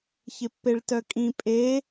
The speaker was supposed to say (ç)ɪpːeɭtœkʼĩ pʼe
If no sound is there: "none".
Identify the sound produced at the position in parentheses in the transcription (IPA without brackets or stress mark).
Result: ç